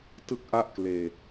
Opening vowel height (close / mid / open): close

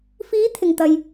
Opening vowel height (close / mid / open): close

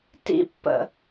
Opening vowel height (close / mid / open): close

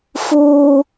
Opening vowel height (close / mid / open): close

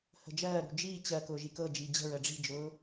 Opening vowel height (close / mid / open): mid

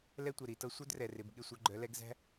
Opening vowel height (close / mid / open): mid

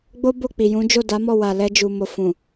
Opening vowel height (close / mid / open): mid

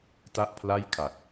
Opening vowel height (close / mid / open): open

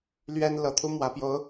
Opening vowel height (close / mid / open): mid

